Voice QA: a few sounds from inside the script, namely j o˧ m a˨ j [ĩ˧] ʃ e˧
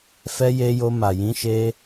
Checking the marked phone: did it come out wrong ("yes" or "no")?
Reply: yes